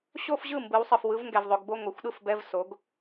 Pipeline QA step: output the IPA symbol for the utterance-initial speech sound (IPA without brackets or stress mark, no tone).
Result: ɕ